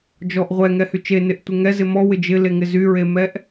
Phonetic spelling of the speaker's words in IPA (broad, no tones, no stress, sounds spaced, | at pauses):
d͡ʒ ɔ ʔ ʁʷ ɛ ŋ ɛ h y t͡ʃ e n ɪ ʔ tʷ e ŋ ɛ z ɪ m ɔ w ɪ d͡ʒ ɪ l e ŋ ɪ z y ɹ e m ɛ ʔ